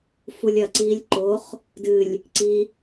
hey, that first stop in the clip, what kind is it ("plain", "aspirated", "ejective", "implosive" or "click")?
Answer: click